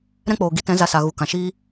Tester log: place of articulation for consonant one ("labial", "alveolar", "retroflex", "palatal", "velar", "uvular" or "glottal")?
alveolar